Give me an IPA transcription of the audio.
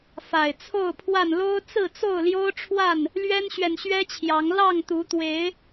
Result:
fa˨˩ɪ̯t͡sʰo˥˨ʊ̯pʰwa˥˨n lo˦ʊ̯ t͡sɹ̩˥˨t͡so˥˨ʊ̯ljo˦ʊ̯ʈ͡ʂʰwa˥˨n | lɥɛ˦nɕɥɛ˨nɕɥɛ˦t͡ɕʰjɑ˨˦ŋ lɑ˥˨ŋt̪u˨˦t̪we˨˦ɪ̯

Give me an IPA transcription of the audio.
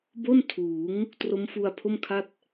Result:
bo˥˩n tʰuː˩˦ŋ | tro˦˥mfu˧a̯pʰo˥˩mkʰa˥˩t̚

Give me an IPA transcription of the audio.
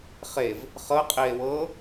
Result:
χev | χɤqʼie̯ wɤ

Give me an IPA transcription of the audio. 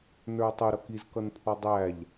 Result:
nə˞o̯tˤʊ ɾʌkiz kʌnpʰɔdˤæʎ

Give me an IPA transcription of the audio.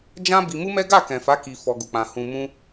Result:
d͡ʒã˦ bi˧mu˦mɛ˦ ɡa˦˨kɛ̃˨fa˨˦ ki˧ fɔ˧ɡu˨k͡pã˧ hũ˧mũ˦

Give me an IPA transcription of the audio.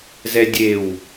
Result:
zɛdʲew

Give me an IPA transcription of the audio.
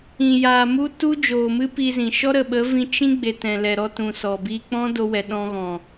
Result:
ĩ˨jaː˨ mu˦ tu˦d͡ʒoː˨mɨ˦ pi˧zĩ˨ ʃɔ˦ɾə˨ɓə˨˦vĩ˧ t͡ʃĩ˦ ɡ͡be˨tɛ̃˨lɛ˨ɾɔ˧ tũ˨sɔ˨ biː˧k͡pɔ̃˦do˧wɛ˨ ɗɔ̃˧ɣɔ̃˨

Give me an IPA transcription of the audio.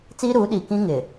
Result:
t͡siː˦ɾuː˨˦ɗiː˨ kĩ˦ŋɪ˨

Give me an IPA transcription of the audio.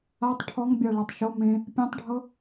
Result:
atˤ ʈʰɔŋbʲa ɭɔtˤʃo mẽ | pʲãtˤɖʱɤ

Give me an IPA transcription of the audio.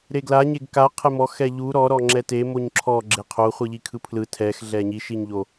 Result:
ɾeɡla ɲeɡka qʰemɔx ɛʎu ɾɔ ɾɔŋ͡ǁɛte moɲǁʰɔ ɡ͡ǁeqʰo χʷɯʎikʰɯpʰlɯ tʰɛx ɮɛɲi ʃiɲʎo

